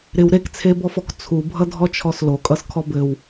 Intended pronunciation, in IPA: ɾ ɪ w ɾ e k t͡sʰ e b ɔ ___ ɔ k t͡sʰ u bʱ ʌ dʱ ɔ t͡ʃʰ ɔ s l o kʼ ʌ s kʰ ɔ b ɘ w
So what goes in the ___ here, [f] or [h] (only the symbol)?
f